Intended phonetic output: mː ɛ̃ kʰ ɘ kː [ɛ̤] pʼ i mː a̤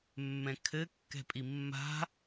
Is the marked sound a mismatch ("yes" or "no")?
no